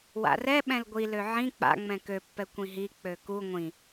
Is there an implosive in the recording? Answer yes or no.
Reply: yes